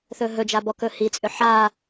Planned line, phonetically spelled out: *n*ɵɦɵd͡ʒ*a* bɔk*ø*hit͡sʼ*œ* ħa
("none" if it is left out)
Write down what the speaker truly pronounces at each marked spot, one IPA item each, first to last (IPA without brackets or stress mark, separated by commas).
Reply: θ, a, ɵ, ø